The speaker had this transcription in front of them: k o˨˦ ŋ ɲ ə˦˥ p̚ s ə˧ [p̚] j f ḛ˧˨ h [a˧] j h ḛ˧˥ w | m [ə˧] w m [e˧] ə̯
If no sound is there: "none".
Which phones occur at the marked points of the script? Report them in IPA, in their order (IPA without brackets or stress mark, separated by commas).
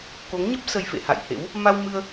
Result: none, a̰˧˨, a˧, ɨ˧